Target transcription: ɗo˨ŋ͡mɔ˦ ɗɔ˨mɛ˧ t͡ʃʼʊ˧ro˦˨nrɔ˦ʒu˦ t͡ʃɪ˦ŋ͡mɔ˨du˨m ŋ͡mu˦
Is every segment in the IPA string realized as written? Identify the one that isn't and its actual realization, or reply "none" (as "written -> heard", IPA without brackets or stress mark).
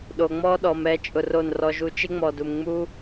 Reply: none